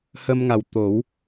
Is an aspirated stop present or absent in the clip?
absent